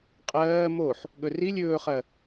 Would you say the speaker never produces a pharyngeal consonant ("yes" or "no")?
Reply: no